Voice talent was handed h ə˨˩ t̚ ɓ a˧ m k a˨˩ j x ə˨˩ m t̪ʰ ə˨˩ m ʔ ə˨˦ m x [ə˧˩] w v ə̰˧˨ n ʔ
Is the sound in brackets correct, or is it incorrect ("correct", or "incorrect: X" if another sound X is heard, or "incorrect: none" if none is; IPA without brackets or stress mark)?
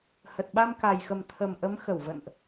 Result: correct